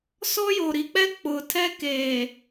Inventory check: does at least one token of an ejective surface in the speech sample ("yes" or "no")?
no